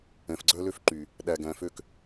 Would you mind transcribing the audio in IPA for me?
ɛ̃˨fɡ͡ǀœ˦lø˦f ǃy˨ | ɗæ˨ɡæ̃˨fø˦˨k

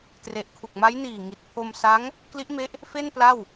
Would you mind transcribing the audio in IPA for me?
tre˨˩ʔ kʰu˨˩k̚ma˦˥jniː˨˩ ŋi˨˩t̚pʰo˧m sa˦˥ŋ | kli˦˥ʔme˦˥ʔ | fe˥˩npla˥˩w

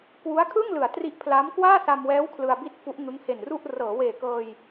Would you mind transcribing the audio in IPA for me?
kwu˦˥a̯kʰɯ˥˩ŋlɯ˩˦a̯ tri˦˥ʔpʰla˦˥m kwaː˥˩sa˧mwɛː˦˥w kʰlɯ˧a̯bi˥˩t̚fu˦˥ʔ ŋɯ˦˥ŋhe˨˩nru˥˩ʔ rɤː˩˦weː˨˩kɤː˧j

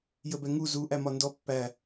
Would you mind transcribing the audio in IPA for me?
jəbɛŋu zu ʔæmɒndɔ pːæ

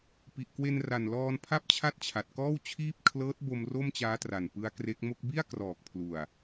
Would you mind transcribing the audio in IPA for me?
pi˨˩ʔkwe˧nra˨˩nlɔː˧n pʰa˥˩p̚ t͡ɕʰa˥˩t̚t͡ɕʰa˨˩t̚kɔː˥˩wt͡ɕʰiː˥˩p̚ kʰlɤː˦˥t̚bo˧m ro˥˩mt͡ɕaː˦˥tra˨˩n pɯ˦˥a̯kre˦˥k̚ mo˥˩k̚ bi˥˩a̯krɔː˨˩k̚pʰlu˨˩a̯

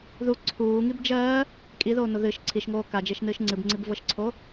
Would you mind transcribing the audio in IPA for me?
ðu ǀʰuːŋib d͡ʒɜː | kʼiðoːno ðɨʃ ǀʰiʃŋoː kad͡ʒeʃnɨːʃ ŋ͡ǀɨbŋ͡ǀibvɤʃǀʰo

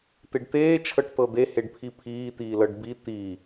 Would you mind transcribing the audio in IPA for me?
t̪eɖt̪eː t͡ʃʰɤʈt̪ɤd̪e heɖpʰipʰiːt̪iː lɤɖbi t̪i

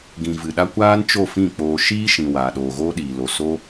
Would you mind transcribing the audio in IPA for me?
ɡĩ˨ vɨ˨ɗa˦ kʷaː˦nt͡ʃo˦˨fĩ˦˨k͡poː˧ ʃiː˦ʃĩ˨ waː˨ɗoː˨ɣoː˦ɗiː˨ lo˨so˦

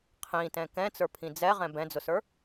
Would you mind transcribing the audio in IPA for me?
qʰĩtɛ̃ kɛ̃t͡sə˞pʰĩ d͡zɛʁɛ̃ bɛ̃d͡zʊsə˞

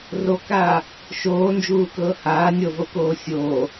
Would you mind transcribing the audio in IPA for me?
rokaː | ʃoːnd͡ʒuːkɤː haː nʲɤvokoː sʲoː

